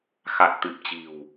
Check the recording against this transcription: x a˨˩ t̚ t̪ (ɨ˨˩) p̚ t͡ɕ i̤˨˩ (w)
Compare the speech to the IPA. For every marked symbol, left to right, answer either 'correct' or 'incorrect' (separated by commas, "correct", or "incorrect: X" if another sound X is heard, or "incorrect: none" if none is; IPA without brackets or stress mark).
correct, correct